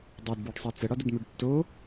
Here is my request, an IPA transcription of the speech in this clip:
dˤ ø d b ə˞ ɖ sˤ ɛ t͡s ə ɽ ɒ d ə d m ø ɖ tː o

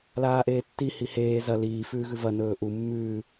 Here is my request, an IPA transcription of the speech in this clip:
l aː ʔ eː tː i h i h eː z ɐ l iː f ʉː ɣ ʉ v ɐ n ɵː ʔ u mː ʉː

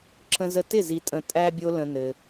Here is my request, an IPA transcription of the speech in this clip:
ǁ ə̃˧ z ə˧ t ɪ˦˨ z i˧ tʼ ə̃˧ tʼ æ˧ bʲ o˧ l ə̃˧ n ɘ˧

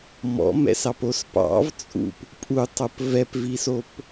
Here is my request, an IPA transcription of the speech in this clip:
m ɔ̰ m ɛ̰ s ɑ p o s p ɑ̰ v t͡sʼ ṵ p | pʼ u tˤ o p v ɛ p v i s o p

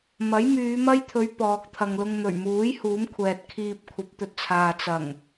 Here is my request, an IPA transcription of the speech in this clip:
m ɐ˨˥ j m yː˨˧ m ɐ˥ j t̪ʰ ɵ˨˧ ɥ p ɔː˨ k̚ t̪ʰ ɐ˨ ŋ l ʊ˧ ŋ n̪ ɵ˨˩ ɥ m uː˨˥ j h uː˨˥ m kʷʰ ɛː˨ t̚ kʰ iː˧ p̚ kʷʰ ɐ˨˥ p̚ t̪ ɵ˨ t̚ t͡sʰ aː˨ t͡s ɐ˨˩ ŋ

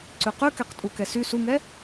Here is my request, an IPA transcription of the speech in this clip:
ǀ ʉ q ʉ k ɛ q tʼ u k ɛ s y s u ŋ ɛ

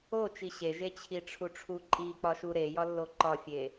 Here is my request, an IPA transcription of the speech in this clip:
o t͡ʃ i ɕ e ʒ e t͡ɕʰ i ʈ͡ʂʰ u ʈ͡ʂʰ u ǃʼ i k͡p ɒ ʃ u ɾ e j ɒ lː o ǃ ɒ fʲ e

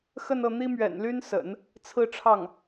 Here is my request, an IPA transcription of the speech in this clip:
x ə˥˧ n ɤ˥˩ n̪ i˥ m ɥ ɛ̰˨˩ n l y˥ n s ə̰˨˩˦ n | t͡sʰ ɹ̩˥˧ ʈ͡ʂʰ ɑ˥˩ ŋ

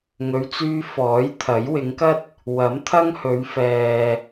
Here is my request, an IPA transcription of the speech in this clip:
ŋ ɵ˨˧ ɥ t͡s yː˧ f ɔː˨˥ j t̪ʰ ɐ˨˥ j w ɪ˨˧ ŋ k ɐ˥ t̚ | w ɐ˨˥ m t̪ʰ ɐ˥ ŋ h ɵ˨˧ ɥ f ɛː˨

